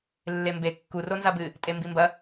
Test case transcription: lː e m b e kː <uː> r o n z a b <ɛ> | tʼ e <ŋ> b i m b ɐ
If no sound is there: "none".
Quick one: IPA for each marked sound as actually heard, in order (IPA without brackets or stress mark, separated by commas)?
u, ɨ, m